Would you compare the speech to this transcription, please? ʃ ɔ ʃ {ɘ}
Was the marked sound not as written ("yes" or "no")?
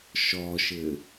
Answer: no